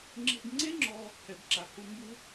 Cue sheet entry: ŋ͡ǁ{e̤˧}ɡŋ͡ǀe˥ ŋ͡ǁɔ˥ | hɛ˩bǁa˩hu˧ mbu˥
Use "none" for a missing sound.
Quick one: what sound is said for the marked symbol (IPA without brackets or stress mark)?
e̤˧